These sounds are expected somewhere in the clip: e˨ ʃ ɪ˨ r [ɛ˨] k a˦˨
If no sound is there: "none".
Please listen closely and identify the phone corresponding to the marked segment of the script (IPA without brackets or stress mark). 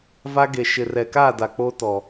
ɛ˨